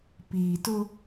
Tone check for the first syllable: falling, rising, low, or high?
low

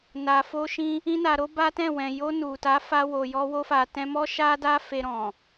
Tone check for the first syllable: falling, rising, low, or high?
low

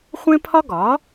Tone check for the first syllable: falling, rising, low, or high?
high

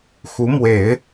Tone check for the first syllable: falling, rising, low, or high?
rising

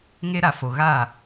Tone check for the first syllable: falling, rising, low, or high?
high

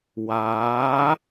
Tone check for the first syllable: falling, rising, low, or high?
rising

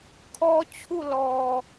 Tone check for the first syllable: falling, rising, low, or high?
high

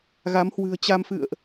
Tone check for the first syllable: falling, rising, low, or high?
rising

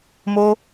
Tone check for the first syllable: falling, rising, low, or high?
high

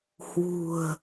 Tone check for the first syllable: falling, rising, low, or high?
low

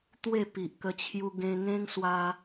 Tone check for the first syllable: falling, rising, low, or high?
falling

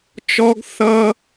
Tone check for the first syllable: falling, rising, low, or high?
high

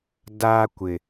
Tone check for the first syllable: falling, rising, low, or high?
high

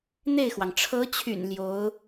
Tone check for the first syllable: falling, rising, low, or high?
falling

